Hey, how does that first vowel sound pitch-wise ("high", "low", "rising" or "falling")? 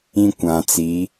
high